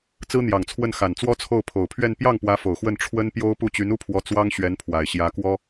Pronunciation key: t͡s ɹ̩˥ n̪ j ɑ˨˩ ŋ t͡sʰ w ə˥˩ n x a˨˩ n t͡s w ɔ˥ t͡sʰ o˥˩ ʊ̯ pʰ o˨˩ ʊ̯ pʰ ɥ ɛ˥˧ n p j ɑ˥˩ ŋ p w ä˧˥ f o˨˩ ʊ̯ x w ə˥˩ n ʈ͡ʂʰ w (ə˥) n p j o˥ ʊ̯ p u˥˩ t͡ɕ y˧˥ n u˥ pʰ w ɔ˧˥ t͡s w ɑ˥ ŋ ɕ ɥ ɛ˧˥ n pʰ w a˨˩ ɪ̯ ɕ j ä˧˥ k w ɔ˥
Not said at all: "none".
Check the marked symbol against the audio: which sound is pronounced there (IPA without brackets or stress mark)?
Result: ə˥